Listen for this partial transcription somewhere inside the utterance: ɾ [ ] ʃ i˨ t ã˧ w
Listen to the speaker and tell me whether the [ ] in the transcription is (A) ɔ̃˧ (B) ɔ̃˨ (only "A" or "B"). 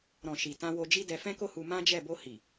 B